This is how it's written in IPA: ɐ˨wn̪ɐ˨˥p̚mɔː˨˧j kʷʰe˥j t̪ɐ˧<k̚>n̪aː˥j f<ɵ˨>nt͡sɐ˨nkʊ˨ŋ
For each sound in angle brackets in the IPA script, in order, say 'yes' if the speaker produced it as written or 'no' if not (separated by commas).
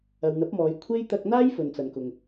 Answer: yes, yes